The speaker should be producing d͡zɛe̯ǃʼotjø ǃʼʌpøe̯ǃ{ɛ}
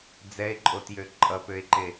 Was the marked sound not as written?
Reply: yes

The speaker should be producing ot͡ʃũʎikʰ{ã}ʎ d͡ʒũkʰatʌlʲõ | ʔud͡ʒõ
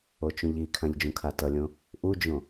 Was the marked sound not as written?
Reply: no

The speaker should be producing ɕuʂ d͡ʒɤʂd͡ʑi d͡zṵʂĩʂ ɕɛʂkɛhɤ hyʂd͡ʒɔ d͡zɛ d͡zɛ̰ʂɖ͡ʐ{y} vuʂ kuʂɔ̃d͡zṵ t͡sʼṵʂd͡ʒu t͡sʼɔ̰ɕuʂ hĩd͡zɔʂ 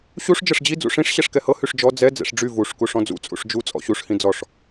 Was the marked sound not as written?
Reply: no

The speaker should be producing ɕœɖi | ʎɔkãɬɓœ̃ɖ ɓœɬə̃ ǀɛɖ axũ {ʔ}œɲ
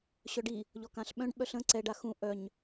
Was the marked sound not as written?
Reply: no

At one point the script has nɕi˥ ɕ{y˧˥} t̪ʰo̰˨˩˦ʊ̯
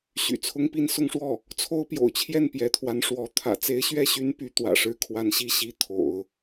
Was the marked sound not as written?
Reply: yes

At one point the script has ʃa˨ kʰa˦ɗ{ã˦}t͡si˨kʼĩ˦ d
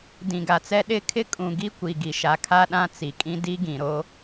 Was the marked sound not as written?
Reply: no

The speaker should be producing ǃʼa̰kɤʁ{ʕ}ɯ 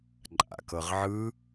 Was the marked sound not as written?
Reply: no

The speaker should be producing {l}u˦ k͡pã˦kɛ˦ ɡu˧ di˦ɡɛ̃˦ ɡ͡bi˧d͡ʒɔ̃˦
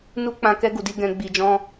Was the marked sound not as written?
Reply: yes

